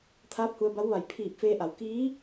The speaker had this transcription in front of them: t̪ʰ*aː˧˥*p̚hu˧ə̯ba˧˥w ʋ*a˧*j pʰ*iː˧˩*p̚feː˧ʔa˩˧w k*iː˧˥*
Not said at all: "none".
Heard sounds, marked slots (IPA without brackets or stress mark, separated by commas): aː˧˥, a˧˩, iː˧˩, iː˧˥